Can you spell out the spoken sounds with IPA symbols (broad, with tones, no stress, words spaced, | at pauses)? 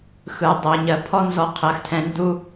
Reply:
xɯ˩ dˤɜ˩ɲɜ˨pʰɔ˦ nzɔ˨qʰɜ˩xtʰɛ̃˨ ndu˦